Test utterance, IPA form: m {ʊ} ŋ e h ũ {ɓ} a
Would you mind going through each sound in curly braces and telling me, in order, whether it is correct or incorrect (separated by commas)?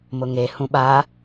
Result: correct, correct